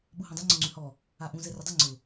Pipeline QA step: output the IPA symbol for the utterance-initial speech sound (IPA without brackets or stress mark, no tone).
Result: ɓ